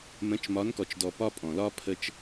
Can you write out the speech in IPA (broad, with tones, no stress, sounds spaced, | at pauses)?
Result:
m ə̃˨˦ t͡ʃ m ɒ˨˦ n k ɔ˨ t͡ʃ d ɔ˨ p ɒ˦ pʼ ɔ̃˨ l ɒ˦ pʰ ə˦ t͡ʃ